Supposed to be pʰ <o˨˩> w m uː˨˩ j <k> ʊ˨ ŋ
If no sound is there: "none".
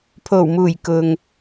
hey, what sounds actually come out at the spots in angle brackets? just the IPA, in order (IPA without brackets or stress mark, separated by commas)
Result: o˨˩, k